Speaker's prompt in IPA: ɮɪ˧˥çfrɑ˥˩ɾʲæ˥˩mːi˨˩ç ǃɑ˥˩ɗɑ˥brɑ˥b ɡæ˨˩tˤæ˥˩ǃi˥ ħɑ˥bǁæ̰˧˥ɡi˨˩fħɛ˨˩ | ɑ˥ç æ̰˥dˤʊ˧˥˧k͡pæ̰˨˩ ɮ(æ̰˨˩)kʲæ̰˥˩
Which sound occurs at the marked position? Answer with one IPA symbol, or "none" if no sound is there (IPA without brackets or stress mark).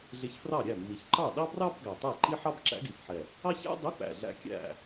æ̰˥